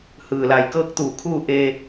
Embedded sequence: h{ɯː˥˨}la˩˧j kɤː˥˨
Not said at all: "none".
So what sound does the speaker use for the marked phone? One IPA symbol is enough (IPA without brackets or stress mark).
ɯː˩